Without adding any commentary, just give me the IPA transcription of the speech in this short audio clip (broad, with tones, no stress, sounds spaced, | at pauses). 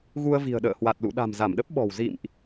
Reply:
ɣ u˧ ə̯ v i̤˨˩ ə̯ ɗ ə̰ː˧˨ h w a˨˩ t̚ l ṵ˧˨ ɗ a̤˨˩ m z a˧˩ m ɗ ə˦˥ p̚ ɓ ɔ̤˨˩ w z ḭ˧˨ m ʔ